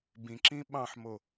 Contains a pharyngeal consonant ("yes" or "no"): yes